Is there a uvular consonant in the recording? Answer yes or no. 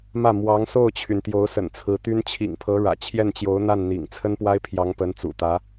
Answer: no